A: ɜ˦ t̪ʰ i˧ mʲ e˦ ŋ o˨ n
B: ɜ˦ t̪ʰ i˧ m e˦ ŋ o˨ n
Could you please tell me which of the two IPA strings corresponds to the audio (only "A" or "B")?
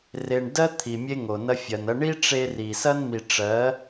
A